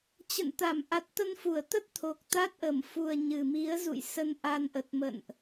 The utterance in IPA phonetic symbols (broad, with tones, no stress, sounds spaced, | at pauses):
t͡ɕ ə̰˧˨ n t̪ a˧˩ m ʔ a˨˩ t̚ t̪ ə˧ n f u˧˩ ə̯ t̪ ə˦˥ t̚ t̪ʰ o˨˩ k̚ t̪ a˦˥ t̚ ʔ ə˧˩ m f u˨˩ ə̯ ɲ ɨ˨˩ m i˨˦ ə̯ z ṵ˧˨ j s ə˧ n ʔ a˧ n ʔ ə˨˩ t̚ m ə̰˧˨ n ʔ